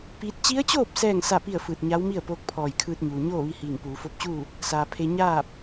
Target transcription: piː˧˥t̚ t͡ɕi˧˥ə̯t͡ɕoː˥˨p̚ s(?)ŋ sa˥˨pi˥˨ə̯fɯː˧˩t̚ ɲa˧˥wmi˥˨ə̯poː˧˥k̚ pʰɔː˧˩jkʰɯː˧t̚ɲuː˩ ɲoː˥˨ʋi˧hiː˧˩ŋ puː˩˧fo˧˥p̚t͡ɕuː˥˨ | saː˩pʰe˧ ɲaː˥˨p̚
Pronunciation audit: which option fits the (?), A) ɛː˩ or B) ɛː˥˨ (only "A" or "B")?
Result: B